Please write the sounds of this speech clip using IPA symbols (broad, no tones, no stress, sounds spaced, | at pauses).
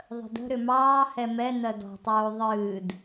ðˤ ə̤ d ə̤ ɾ ʏ m ɑː h ɛ m ɛ n ɜ d ɔ̤ tˤ oː ðˤ ɨː d